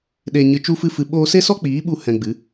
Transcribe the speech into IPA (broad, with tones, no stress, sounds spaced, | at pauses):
ɗ e˧ ɲ ɨ˧ t͡ʃ u˦ f ɨ˦ f ɨ˧ ɓ oː˦ s e˦ s ɔ˦ k͡p iː˨˦ ɓ u˧ h ɛ̃˧ ɡ͡b ɨ˨˦